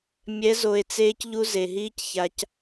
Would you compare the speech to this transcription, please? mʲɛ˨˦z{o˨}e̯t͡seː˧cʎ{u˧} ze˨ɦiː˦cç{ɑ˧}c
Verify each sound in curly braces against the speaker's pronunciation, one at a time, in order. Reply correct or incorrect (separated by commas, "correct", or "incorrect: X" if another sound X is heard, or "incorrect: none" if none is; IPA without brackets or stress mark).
correct, correct, incorrect: a˧